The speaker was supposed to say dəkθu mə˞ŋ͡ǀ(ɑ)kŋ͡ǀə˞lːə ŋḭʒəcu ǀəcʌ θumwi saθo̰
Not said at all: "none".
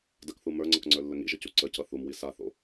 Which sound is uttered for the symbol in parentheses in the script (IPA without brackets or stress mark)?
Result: ʌ